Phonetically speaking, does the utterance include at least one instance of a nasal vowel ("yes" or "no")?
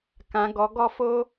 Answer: yes